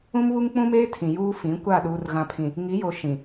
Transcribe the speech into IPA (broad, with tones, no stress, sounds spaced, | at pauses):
ũ˦ m β u˦ ŋ k͡p ũ˦ m eː˦ tʰ ĩ˨ j uː˦ f ĩ˨˦ kʷ a˦˨ ɗ uː˨ r ɣ ã˨ pʰ ĩ˨ | ŋ i˨˦ j o˨ ʃ ĩ˨